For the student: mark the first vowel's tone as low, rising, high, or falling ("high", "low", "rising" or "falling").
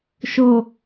low